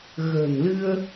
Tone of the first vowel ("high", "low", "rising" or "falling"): low